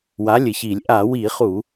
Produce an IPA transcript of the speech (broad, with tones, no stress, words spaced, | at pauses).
wa˨˥lʲɘ˧˩˧çi˧˩˧lʲ ʔa˧˩˧wi˧˩˧χu˧˩˧